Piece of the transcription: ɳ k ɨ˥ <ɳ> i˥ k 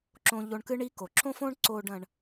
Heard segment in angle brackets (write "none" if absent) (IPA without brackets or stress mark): ɳ